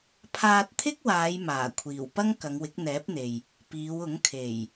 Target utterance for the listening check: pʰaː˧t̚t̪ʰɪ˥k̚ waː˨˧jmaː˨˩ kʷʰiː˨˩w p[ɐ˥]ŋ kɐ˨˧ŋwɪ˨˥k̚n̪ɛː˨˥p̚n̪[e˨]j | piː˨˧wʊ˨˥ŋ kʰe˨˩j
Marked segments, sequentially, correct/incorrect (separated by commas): correct, correct